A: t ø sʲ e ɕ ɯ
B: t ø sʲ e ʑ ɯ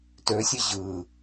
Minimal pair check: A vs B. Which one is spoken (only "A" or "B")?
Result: B